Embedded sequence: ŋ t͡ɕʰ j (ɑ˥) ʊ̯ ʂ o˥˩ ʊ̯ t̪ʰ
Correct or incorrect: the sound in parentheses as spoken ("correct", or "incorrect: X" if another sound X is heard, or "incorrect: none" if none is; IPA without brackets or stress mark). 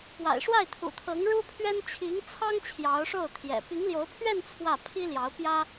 incorrect: ɑ˧˥